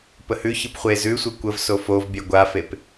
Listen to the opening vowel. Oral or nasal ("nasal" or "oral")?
oral